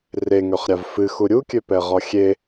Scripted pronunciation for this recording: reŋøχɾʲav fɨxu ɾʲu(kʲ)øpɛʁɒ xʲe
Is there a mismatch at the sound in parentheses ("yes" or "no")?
no